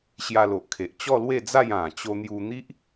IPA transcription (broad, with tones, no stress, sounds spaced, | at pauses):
ɕ j a˧ l o˨ ʔ kʰ e˨ ʔ t͡ɕ ɔ˥˧ l w e˥˧ d͡z a˥˧ j ã˨˩ t͡ɕ o˧ n̪ j u˧ n̪ i˦ ʔ